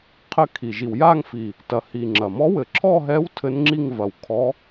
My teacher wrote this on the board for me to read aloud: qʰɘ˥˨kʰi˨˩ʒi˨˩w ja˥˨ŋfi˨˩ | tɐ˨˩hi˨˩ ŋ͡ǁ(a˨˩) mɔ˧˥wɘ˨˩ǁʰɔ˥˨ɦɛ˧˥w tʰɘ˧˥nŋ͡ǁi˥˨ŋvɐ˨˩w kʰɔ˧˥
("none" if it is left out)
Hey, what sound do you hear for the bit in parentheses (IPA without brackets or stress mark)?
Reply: ɐ˨˩